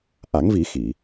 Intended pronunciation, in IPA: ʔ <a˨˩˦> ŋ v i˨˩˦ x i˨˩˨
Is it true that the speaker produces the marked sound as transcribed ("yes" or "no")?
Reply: yes